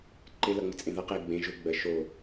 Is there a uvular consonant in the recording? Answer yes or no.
yes